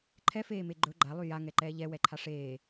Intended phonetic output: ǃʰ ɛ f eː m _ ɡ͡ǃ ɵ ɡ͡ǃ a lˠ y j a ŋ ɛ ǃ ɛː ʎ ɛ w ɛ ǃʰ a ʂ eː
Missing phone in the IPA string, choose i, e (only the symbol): e